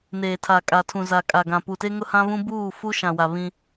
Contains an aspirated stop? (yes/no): yes